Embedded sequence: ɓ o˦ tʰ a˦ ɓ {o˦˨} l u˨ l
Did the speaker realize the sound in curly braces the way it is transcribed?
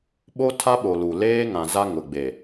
no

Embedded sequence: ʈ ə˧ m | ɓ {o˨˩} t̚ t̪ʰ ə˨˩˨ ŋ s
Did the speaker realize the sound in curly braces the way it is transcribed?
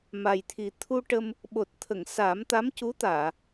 yes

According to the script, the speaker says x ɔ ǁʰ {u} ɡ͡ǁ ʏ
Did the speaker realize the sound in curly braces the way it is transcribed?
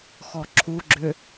yes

